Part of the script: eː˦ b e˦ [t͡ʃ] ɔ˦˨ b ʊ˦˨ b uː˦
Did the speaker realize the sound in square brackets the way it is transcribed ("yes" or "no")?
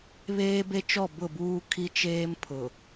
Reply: yes